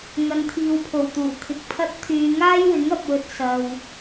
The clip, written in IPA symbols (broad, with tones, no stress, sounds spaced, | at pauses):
ŋ ɐ˧ n t̪ʰ iː˧ w pʰ o˨˩ w t̪ uː˨˩ t̪ʰ ɪ˨ k̚ pʰ ɐ˥ t̚ t̪ʰ yː˧ ŋ aː˥ j w ɪ˨˥ ŋ ɐ˨ p̚ w ɵ˨ t̚ s ɐ˨ w